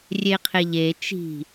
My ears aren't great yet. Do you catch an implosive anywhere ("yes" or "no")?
no